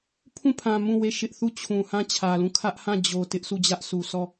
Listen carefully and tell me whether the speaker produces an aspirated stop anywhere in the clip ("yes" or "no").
yes